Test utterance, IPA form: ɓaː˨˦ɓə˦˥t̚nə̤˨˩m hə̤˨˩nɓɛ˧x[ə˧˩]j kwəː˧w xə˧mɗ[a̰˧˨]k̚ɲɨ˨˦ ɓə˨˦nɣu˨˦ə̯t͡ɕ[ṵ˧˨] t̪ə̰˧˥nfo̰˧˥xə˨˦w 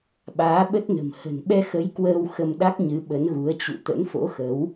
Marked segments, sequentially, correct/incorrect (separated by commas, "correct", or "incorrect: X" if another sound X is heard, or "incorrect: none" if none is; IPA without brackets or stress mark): incorrect: ə˨˦, incorrect: a˦˥, correct